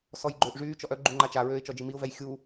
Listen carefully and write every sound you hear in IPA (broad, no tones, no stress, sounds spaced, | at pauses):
s ɔ j ɡ͡ǃ øː ʔ ʐ yː t͡ʃ ɔ ʔ œ ɡ͡ǃ u ŋ͡ǃ a t͡ʃ a ɹ øː ɪ̯ t͡ʃ ɔ d͡ʒ i m i ʊ̯ v ɛ j xʲ u